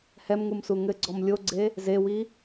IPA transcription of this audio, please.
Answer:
h ɛ m ŋ u m s u ŋ ɘ ɡ͡ǀ ɔ m lʲ o ɡ͡ǀ e | z e w i

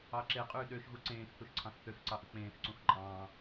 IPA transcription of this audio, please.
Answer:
ɑ ǁ e qʼ yː ɗ ø ʃ ɣ u ǀ ẽː x θ u ʃ ǀʰ ɑ̃ x θ ø x ǀ ɑ ʔ ɯ k͡p ẽː x ǀ ũ x ǃʼ ɑ̃ː

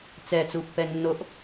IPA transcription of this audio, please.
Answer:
t͡s ɛ t͡s u pː ɛ nː o ʔ

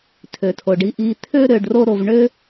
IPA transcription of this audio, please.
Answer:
tʰ ø˩ tʰ o˩ ɖ i˧ ʔ i˧ t̪ʰ ø˥ ɾ ø˧ ɖ r o˥ ɾ o˧ v ɳ ø˥

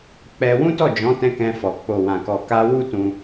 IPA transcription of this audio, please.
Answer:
k͡p ɛ˧ w ũ˦ t ɔ˦˨ d͡ʒ ɔ̃˨˦ t ɛ̃˧ k ɛ̃˧ f ɔ˨ k͡p o˨ w ã˨ k ɔ˨ k a˧ w u˦ t ũ˧

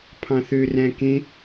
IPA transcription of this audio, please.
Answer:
pʰ ɑ̃ θ ø r æ̃ k ẽ

